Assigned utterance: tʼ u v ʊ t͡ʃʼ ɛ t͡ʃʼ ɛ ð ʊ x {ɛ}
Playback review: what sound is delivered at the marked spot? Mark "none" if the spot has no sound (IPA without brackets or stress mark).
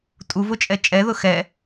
ɛ